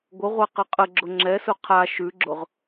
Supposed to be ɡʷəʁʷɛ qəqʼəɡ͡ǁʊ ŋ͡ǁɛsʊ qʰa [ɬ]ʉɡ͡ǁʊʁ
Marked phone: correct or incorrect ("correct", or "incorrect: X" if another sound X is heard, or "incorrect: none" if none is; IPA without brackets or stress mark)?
incorrect: ʃ